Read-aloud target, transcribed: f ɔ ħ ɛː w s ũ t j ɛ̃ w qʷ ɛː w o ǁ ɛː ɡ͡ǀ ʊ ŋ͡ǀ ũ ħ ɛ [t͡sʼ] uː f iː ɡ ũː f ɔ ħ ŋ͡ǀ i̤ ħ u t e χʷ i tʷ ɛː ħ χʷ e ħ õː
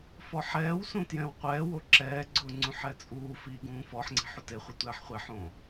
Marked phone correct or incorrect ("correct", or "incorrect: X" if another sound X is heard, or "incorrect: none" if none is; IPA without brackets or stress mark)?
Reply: correct